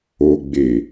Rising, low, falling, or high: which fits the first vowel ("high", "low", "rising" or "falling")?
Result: low